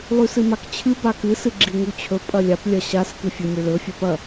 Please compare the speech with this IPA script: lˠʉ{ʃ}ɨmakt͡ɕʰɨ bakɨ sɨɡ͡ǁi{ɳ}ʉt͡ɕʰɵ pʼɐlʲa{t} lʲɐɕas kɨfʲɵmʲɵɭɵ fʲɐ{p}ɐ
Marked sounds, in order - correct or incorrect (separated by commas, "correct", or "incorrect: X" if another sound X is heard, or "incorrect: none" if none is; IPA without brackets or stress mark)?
incorrect: s, incorrect: ŋ, incorrect: p, correct